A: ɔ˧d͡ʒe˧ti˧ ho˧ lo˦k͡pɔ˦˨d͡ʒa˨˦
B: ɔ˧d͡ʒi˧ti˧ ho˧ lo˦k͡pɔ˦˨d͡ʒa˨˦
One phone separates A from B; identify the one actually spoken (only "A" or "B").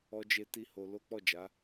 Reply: A